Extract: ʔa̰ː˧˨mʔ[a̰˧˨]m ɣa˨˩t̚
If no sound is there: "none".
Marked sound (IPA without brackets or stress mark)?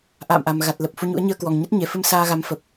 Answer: a˨˩